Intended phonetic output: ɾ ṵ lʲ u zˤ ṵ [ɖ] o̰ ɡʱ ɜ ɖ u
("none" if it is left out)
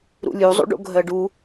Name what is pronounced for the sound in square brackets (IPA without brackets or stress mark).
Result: ɖ